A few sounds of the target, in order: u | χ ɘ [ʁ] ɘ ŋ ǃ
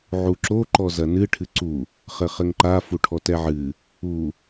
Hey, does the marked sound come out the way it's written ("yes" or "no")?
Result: no